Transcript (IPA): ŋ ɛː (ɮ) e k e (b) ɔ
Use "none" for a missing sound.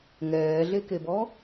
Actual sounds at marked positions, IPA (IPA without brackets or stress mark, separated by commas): ɮ, b